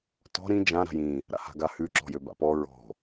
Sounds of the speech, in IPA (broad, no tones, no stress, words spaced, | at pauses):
tɔ̤ ɾĩ d͡ʒã ɾa̤jĩ | ɾa̰ha̤ɡahʉ ǁɔ̤jøba̰pɔ ɹɔ̤